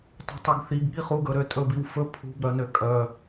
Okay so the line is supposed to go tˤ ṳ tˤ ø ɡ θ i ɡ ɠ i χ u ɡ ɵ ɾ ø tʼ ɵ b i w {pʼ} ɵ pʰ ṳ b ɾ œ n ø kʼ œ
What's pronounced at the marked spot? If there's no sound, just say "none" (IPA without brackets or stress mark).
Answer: f